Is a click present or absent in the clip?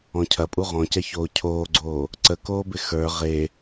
present